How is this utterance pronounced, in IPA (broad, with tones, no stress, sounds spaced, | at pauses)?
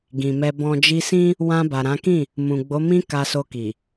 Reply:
ɡ ĩ˨ m ɛ˧ b ɔ̃˨ d͡ʒ i˧ s ĩ˦ | w ã˧ b a˨ ɾ ã˨˦ k ĩ˦˨ | m ũ˨ ɡ͡b o˨˦ m ĩ˧ k a˧ s o˧ k i˨